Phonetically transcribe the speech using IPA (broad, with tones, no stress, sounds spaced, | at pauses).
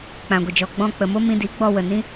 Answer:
k͡p ã˨ ɡʷ ə˨ d͡ʒ ɔ˨ ɡ͡b ɔ̃˧ k͡p ə˨ m o˦ m ĩ˧ d i˨˦ ɡ͡b ɔ˧ w ə˨ n ĩ˦